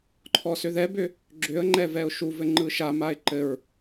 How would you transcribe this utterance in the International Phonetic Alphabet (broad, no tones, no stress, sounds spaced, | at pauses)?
ǃʰ ɔ s ʏ ð ɛ b ʏ | ɡ͡ǁ ʏ ə̯ ŋ͡ǃ ɛ v ɛ ʊ̯ ʃ u v ɘ ŋ͡ǃ ɯ ʃ a m a ɪ̯ ǃ ɘ ɹ